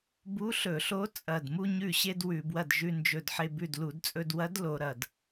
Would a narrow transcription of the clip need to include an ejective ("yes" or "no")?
yes